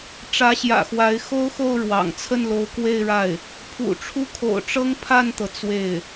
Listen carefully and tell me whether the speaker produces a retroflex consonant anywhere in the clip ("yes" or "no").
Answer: yes